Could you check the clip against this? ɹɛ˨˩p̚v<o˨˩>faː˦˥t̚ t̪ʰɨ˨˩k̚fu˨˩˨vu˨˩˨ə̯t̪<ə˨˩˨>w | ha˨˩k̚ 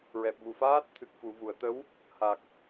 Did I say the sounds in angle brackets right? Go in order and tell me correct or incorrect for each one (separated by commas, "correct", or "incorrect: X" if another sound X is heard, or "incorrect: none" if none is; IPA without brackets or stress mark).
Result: incorrect: u˨˩, incorrect: ə˧˥